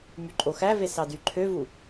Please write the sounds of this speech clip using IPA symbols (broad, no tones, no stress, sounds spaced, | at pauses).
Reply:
m y ǃʼ o x æ v e s ɑ d y ǃʰ ø v u